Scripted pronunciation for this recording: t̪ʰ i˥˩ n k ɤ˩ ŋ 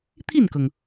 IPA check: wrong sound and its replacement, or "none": none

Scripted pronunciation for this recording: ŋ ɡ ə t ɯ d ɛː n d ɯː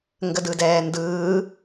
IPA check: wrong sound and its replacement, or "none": t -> d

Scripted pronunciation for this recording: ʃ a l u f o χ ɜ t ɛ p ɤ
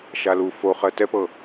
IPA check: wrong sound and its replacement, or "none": none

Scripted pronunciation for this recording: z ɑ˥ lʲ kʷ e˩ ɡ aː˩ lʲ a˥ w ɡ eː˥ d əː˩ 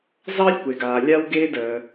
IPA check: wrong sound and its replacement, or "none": none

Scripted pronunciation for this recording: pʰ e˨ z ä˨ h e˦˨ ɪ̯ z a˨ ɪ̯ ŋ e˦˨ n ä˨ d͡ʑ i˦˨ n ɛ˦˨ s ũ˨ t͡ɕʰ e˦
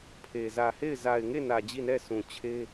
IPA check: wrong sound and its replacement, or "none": none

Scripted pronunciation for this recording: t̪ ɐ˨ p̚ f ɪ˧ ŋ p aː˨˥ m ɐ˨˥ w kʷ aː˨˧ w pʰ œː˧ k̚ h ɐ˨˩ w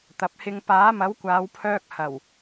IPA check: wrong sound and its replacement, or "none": f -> h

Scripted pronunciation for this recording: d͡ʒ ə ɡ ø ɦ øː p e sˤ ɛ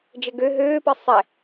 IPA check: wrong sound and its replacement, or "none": none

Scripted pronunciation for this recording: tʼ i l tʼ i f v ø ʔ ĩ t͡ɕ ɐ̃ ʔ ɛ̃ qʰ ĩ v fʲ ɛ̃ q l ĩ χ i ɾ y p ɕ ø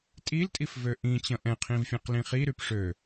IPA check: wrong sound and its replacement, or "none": ɕ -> ʂ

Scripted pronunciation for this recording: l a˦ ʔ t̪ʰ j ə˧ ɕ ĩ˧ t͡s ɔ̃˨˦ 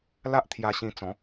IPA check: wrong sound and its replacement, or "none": ə˧ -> a˧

